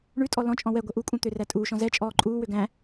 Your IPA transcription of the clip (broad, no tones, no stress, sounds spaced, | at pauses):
ɳ ʉ tʼ ɔ l ɔ̃ t͡ʃʼ ɔ̃ w ɛ ɡʷ ɛ ʔ u kʼ ũ t̪ ø r æ tʼ uː ʃ ɔ̃ z ɛ t͡ʃʼ ɔː ǃʼ uː w ø ɡ æ̃